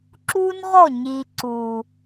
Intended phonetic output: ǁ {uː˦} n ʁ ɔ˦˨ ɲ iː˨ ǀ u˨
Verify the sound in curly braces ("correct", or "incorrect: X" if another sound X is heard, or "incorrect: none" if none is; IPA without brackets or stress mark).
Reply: correct